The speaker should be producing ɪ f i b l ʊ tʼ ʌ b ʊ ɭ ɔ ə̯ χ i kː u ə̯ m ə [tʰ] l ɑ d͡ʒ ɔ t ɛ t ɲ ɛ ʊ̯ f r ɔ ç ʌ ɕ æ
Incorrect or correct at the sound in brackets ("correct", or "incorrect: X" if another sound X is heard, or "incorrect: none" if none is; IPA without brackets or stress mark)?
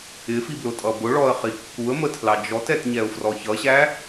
correct